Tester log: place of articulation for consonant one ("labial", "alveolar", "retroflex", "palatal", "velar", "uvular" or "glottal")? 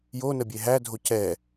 palatal